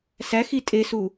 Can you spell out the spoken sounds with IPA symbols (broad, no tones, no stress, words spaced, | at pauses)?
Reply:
sæxi tʼesu